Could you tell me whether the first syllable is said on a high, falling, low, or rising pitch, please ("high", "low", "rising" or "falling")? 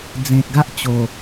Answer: low